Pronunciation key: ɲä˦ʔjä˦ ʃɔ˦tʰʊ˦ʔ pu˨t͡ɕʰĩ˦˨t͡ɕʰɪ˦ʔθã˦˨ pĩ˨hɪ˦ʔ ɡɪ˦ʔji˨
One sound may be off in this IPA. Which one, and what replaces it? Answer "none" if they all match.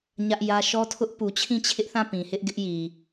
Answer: none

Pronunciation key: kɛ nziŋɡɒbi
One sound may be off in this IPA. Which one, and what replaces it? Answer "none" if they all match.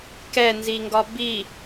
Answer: none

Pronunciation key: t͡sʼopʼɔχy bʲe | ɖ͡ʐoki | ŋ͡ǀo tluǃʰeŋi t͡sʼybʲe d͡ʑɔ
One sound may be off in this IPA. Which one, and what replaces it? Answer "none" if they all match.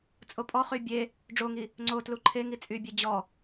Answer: k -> ŋ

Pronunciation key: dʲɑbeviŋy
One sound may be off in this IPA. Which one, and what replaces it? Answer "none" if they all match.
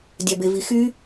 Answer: ŋ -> x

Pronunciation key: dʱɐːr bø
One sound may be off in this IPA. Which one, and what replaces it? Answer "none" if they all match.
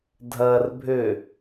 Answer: b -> bʱ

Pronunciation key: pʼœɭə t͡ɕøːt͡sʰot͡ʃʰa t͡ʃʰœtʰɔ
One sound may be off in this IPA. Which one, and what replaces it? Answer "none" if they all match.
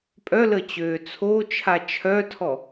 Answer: ɭ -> l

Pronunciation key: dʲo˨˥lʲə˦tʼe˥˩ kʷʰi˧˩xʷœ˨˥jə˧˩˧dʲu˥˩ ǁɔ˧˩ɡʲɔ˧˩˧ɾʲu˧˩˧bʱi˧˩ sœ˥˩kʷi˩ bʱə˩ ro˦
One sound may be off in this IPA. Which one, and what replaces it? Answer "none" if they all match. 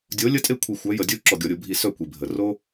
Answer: none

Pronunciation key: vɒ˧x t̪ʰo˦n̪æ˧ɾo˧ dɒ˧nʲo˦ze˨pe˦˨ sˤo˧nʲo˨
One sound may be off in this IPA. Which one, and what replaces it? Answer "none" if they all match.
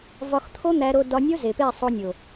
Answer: none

